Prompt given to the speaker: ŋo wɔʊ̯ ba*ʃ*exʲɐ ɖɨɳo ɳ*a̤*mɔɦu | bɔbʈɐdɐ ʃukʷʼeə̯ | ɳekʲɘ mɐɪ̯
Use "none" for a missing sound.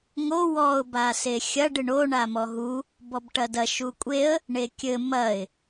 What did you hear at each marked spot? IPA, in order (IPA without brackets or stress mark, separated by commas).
s, a